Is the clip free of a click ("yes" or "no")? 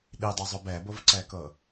no